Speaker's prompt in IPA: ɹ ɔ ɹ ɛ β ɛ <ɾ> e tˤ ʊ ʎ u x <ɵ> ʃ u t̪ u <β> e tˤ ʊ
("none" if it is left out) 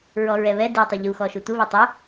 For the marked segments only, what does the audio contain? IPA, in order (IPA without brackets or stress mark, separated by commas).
d, ɔ, β